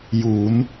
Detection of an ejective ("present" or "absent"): absent